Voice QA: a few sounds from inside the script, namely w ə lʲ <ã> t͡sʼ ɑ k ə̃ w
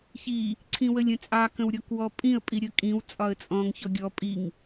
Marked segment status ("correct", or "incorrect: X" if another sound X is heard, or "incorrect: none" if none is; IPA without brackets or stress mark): incorrect: ə̃